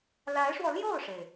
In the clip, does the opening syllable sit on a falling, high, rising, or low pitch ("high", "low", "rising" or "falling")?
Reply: rising